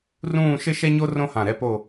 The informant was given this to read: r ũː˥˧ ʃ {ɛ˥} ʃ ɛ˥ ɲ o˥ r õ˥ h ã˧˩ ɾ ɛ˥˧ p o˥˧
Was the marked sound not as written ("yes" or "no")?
yes